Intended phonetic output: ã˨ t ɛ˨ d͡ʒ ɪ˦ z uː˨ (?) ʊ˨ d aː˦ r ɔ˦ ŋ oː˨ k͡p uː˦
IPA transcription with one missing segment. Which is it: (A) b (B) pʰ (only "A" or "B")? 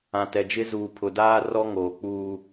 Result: B